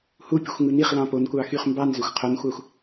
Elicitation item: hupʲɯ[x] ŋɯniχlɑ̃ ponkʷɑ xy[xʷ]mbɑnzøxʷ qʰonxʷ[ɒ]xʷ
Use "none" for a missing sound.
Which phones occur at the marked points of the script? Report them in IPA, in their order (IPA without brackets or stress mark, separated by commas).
xʷ, χ, ɑ